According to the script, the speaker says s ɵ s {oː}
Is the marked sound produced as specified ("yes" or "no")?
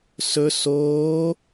yes